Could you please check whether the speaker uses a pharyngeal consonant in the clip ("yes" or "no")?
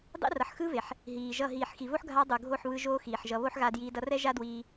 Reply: yes